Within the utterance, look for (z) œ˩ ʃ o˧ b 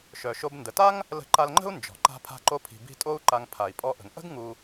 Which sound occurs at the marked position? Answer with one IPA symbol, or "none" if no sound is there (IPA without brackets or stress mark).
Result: ʃ